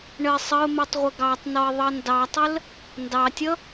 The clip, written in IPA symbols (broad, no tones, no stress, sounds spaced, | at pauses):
ɳ ə ɪ̯ sˤ ə ʊ̯ m i tˤ ʁʷ ɪ ɡ ɑ tˤ n ɔ ɪ̯ ðˤ ʌ n d ɑ tˤ ə l | n d ɑ tʲ ʌ